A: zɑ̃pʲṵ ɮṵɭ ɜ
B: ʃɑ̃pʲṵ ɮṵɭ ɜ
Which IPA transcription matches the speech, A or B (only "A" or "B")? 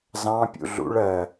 A